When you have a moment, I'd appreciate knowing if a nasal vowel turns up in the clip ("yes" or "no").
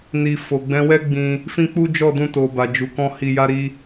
yes